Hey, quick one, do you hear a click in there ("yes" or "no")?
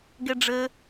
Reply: no